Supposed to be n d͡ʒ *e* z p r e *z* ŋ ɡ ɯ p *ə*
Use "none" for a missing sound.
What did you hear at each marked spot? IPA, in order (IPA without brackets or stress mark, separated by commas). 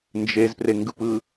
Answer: e, none, ɯ